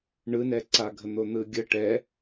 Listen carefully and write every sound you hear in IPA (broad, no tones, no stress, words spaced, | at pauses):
ɳɯnɛǀaɡʱə n̪on̪ɯɡʲə ʈɛ